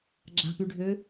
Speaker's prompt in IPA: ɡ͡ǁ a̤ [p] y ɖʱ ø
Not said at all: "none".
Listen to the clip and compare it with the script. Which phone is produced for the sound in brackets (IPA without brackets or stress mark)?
p